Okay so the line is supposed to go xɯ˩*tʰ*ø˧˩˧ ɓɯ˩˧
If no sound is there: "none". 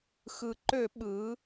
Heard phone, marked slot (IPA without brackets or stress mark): ǃ